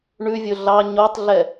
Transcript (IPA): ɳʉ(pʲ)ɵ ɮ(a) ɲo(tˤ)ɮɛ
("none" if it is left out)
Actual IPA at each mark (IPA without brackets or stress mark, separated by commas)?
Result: vʲ, ɑ, tˤ